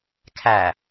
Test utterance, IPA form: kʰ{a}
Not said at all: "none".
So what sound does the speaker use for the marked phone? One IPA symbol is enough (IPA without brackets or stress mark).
æ